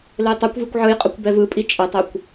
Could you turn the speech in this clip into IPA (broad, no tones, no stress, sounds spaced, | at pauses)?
l ɘ j tˤ ɤ kʷ v i kʷ ʕ ɯ j qʼ ʌ kʷ b ɛ v ɯ pʼ i t͡ʃʼ ə tˤ ɛ kʷ